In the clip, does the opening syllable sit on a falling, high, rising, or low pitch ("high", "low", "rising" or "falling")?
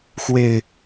low